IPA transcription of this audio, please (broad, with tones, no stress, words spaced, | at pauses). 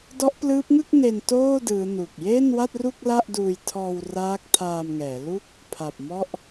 dɔ˦˥ʔplɯː˦˥p̚ŋɯ˥˩k̚ne˧n toː˥˩ dɯː˦˥nu˨˩k̚ jeː˥˩nwa˥˩t̚ru˥˩k̚ la˥˩ʔduː˧jtʰɔː˧w raː˦˥k̚tʰaː˧mŋɛː˩˦lu˥˩k̚ | pʰa˨˩p̚mɔ˥˩ʔ